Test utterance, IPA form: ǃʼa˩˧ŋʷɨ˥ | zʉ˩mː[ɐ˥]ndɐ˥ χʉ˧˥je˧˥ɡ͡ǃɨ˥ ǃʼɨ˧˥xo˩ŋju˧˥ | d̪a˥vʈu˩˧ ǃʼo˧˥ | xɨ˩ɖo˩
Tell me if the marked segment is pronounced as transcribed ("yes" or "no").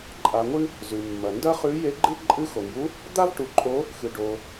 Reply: no